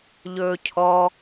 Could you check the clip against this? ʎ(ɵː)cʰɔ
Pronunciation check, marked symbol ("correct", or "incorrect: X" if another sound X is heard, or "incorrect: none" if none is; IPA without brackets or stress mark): correct